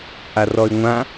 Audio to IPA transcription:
ʔarɔy̯ŋʷã

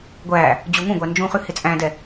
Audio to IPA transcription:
ɡʷæ | d͡ʑuŋũɡʷæ nd͡ʒũχʉ hɪt͡sʼæ̃dɛ

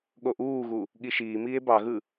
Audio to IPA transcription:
ɠoʔuːɣu | ɠiʃiːmiːe̯ bɑɣɯ

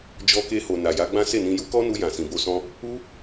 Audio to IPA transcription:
d͡ʒɔ˧ke˧ho˨ na˨ja˨˦ɡ͡bã˦ se˦˨nĩ˧ ju˦kɔ˦nu˧ jã˨sĩ˨bo˧sɔ̃˧ | u˦

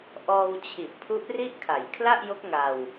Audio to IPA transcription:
ʔɔː˧wt͡ɕʰi˨˩ʔ pʰu˦˥ʔri˥˩ʔkʰa˩˦j kʰla˥˩ʔjo˦˥k̚ ŋa˧w

